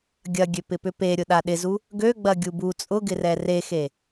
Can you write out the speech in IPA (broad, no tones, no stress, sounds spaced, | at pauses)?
ɡʲ ɐ ɡʲ ø p ɪ p ʏ p e ɾʲ ʊ ɗ a ɗ ɪ z u | ɡ ø ɡ͡b ɐ ɡʲ u b u t͡sʼ ʊ ɡ ɪ r ɛ r e x e